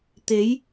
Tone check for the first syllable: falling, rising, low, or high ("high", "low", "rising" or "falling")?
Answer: rising